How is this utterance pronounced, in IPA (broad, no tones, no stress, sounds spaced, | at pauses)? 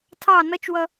tʰ ɑ n ʌ t͡ʃ w ʌ